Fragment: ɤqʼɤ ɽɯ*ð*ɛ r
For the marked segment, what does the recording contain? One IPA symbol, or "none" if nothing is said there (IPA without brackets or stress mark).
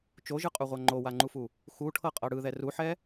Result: ð